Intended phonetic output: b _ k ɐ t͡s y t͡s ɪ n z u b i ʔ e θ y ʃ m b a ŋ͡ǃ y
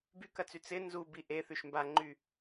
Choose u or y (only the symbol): y